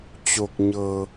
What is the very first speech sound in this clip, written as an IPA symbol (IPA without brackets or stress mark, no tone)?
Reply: t͡ɕ